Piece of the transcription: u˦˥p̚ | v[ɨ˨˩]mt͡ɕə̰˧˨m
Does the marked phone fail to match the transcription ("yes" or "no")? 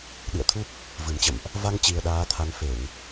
no